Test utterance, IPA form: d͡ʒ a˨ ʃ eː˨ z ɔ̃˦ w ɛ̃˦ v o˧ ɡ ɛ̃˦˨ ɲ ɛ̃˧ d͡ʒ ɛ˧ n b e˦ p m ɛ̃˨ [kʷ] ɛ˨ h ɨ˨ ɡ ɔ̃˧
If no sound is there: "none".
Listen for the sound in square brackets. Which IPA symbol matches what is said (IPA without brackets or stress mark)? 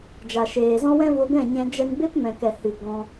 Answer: k